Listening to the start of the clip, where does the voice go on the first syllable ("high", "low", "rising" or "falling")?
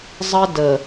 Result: high